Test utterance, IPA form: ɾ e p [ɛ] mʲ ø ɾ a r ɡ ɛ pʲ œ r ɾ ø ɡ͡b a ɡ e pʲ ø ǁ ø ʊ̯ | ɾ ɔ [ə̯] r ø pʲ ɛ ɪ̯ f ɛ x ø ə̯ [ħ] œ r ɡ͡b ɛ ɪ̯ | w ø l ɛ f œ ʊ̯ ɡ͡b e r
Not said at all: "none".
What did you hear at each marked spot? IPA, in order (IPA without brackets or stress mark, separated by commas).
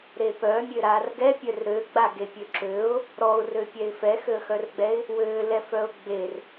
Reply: œ, ʊ̯, x